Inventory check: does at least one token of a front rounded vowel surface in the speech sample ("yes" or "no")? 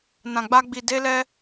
no